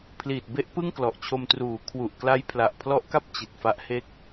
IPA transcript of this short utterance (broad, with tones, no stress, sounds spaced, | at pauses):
pʰ l iː˨˩ t̚ b e˦˥ ʔ p ɯ˥˩ ŋ k l ɔ˨˩ ʔ t͡ɕʰ o˧ m t r uː˩˦ kʰ w u˨˩ ʔ k l a˦˥ j pʰ l a˨˩ ʔ pʰ l ɔ˦˥ ʔ k a˥˩ p̚ t͡ɕ i˨˩ t̚ f a˦˥ ʔ h e˥˩ k̚